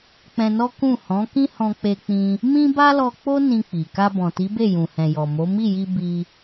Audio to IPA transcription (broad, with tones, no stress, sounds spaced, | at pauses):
k͡p ɛ̃˧ n ɔ˦ k ũ˦˨ h ɔ̃˨˦ k ĩ˦ h ɔ̃˧ k͡p e˧ k͡p ĩ˧ | m ĩ˦ b a˦ l ɔ˧ k͡p o˦ n ĩ˧ k͡p i˨ k a˧ b ɔ̃˨ t i˨˦ b e˦˨ j ũ˨ h ɛ̃˨ j ɔ˨ m o˨˦ m i˦˨ j i˧ b i˧